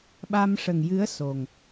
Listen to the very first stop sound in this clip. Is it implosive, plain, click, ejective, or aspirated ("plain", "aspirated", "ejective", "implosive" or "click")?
implosive